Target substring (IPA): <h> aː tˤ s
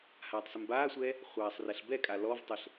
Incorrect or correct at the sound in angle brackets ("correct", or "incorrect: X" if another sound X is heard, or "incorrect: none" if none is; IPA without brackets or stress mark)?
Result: correct